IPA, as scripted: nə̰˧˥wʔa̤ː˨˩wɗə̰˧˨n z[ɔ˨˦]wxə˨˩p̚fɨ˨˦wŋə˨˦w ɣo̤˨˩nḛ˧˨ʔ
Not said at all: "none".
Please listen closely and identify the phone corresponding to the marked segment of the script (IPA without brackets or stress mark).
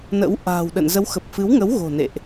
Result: ə˨˦